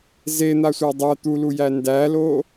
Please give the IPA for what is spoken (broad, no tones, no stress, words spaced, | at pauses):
zen̪asʷæ dˤæ t̪ulujæ ndælo